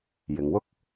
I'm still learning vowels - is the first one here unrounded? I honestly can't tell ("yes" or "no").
yes